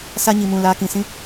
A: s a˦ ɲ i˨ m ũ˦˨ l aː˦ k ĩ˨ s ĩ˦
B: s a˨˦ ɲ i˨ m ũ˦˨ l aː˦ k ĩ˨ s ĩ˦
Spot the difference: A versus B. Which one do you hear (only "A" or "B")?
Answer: A